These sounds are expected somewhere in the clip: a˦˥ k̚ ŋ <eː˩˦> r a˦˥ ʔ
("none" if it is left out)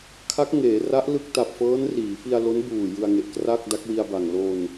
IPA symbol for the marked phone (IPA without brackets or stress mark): eː˩˦